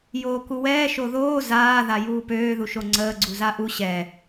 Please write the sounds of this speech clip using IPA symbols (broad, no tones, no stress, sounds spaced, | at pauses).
j oː k u w ɛː ʃ o ð oː z aː ð a j uː p øː ð u ʃ o ŋ͡ǀ əː ɡ͡ǀ u z a ʔ u ɕ ɛ